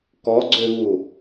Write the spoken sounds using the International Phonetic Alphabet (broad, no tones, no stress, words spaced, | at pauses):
kɔɡ͡ǀøvu